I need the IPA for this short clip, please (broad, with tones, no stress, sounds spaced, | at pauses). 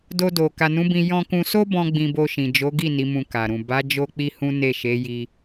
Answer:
d o˧ d o˨ k a˨ n ũ˨˦ b ĩ˧ j ɔ̃˧ k ũ˧ s o˦ b ɔ̃˧ ɡ͡b ĩ˧ b o˧ ʃ ĩ˨ d͡ʒ o˨˦ ɡ i˦˨ n i˨˦ m ũ˧ k a˨ ɾ ũ˨ b a˨˦ d͡ʒ o˦ k͡p i˦ h ũ˦ n e˦˨ ʃ e˨˦ j i˧